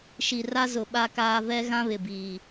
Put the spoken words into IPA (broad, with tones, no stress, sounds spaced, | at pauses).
ʃ i˨ r a˦ z ʊ˨ ɓ a˦ k aː˦ v ɛ˦ ɣ ã˦ β ɪ˨ b iː˨